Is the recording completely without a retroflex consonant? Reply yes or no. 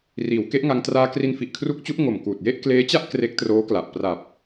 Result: yes